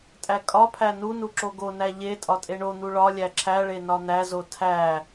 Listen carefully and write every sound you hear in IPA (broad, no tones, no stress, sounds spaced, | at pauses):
tʼ æ kʼ ɒ pʰ æ n u n u ǁ o ɡ o n æ ʎ e tʼ ɒ tʼ e ɳ o n̪ u ɭ ɒ lʲ æ ǁʰ æ ɭ e n ɒ n̪ æ z o tʰ æ